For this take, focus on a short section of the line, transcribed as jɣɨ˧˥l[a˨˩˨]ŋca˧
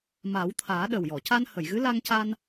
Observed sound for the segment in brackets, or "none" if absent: a˧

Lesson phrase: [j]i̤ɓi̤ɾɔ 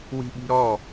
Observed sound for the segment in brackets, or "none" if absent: w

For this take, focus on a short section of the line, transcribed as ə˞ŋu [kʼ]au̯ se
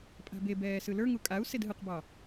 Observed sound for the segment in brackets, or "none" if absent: kʼ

